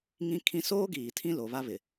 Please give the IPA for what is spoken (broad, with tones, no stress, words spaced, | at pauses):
ŋĩ˦kʰĩ˦ soː˦ɡiː˨ tʰĩ˦lo˨βa˦βɪ˨